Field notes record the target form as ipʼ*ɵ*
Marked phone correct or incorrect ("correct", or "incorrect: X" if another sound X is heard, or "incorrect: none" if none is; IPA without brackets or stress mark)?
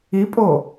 incorrect: o